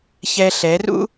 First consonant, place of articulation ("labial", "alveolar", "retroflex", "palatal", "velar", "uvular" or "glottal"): palatal